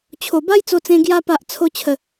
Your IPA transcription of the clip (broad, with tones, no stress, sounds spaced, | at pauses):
t͡ɕʰ o˨˩ b a˦ j t͡s o˧ t͡s ẽ˧ ɡ j a˧ p a˨ ʔ t͡sʰ o˧ t͡ɕʰ ə˨˩